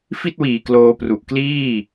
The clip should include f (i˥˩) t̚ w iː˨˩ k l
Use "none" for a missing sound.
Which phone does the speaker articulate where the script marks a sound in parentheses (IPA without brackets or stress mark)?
i˥˩